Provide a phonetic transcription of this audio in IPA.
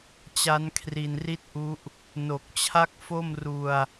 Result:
t͡ɕ a˦˥ n kʰ r i˧ n r i˥˩ t̚ ʔ u˦˥ ʔ | n o˨˩ k̚ t͡ɕʰ a˥˩ k̚ f o˥˩ m r u˧ a̯

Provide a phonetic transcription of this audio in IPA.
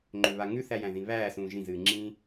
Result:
ŋ͡ǃ ʏ β a ŋ ʉ θ æ j æ̃ ð ĩ β æː s ũː ʒ ĩ z ɨː ŋ͡ǁ ĩː

